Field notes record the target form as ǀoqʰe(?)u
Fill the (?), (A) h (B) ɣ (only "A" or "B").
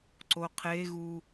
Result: B